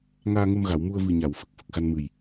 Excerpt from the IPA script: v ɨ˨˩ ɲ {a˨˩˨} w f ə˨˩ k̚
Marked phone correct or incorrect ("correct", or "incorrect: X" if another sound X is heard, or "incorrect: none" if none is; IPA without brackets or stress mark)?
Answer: correct